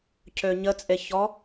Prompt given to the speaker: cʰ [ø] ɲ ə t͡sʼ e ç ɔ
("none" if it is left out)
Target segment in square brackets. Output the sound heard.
ø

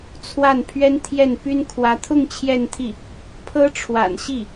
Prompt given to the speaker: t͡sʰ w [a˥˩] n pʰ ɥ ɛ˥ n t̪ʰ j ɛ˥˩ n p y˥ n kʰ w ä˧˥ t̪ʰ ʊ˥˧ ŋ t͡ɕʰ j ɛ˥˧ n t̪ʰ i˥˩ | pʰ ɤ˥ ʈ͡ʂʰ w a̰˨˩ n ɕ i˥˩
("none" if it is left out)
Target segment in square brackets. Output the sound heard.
a˥˩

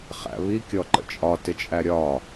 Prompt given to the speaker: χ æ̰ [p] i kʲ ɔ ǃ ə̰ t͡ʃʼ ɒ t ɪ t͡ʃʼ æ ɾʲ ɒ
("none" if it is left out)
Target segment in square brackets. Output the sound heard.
β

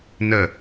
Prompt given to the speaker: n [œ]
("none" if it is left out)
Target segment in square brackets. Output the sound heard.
ə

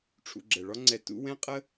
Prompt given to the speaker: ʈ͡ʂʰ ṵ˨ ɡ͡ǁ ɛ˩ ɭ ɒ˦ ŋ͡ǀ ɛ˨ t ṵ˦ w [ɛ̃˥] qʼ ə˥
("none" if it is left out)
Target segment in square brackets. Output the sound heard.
ɛ̃˥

